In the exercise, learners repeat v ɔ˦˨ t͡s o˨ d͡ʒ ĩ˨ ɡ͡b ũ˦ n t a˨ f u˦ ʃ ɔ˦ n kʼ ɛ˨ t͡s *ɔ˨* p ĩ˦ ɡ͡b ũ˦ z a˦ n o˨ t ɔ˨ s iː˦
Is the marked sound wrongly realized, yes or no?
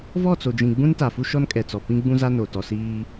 no